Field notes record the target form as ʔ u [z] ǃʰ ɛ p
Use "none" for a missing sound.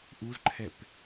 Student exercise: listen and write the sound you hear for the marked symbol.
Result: z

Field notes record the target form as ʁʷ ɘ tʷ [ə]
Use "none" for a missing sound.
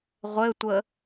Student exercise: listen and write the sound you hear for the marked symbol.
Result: ə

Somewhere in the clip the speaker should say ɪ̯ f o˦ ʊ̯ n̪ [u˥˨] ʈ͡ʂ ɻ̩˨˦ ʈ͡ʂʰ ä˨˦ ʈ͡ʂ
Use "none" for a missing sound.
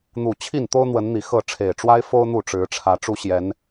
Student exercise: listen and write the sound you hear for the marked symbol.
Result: u˥˨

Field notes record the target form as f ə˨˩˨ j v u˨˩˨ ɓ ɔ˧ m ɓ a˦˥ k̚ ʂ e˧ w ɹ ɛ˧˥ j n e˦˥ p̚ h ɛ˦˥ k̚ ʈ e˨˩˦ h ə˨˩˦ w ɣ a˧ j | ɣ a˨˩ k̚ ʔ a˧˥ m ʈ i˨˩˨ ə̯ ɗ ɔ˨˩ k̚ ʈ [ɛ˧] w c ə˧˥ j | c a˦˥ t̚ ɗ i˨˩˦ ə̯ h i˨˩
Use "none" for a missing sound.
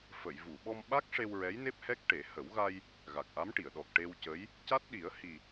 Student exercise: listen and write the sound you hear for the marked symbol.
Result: e˧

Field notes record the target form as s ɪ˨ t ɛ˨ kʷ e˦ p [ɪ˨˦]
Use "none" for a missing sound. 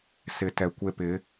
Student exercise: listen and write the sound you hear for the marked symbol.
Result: ɪ˨˦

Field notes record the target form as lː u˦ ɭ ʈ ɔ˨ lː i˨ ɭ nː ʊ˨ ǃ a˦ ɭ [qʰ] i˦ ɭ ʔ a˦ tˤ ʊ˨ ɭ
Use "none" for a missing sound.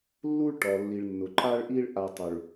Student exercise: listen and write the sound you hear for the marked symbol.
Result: ʔ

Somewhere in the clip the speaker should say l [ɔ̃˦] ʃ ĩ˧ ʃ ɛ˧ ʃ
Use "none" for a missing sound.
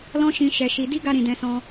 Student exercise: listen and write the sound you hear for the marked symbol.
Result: ɔ̃˦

